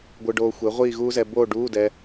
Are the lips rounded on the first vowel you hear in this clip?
no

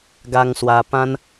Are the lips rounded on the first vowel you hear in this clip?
no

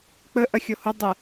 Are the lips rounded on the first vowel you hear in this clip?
no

